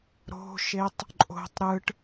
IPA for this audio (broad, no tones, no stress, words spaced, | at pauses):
ɾo̤ʃetˤ | ǃʼo̤tˤ ɾɯʈ